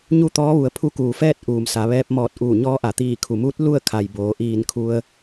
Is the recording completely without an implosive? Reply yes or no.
yes